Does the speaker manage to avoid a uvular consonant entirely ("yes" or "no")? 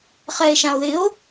no